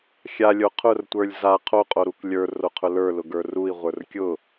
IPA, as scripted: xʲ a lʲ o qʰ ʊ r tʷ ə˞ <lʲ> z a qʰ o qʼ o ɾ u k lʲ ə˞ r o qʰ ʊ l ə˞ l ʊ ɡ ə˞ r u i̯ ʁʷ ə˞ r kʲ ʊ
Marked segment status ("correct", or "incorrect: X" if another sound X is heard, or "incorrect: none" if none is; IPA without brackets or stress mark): correct